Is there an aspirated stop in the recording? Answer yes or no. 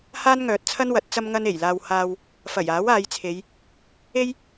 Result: yes